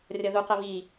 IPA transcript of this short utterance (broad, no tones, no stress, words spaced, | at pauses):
rʲʌðuqə βi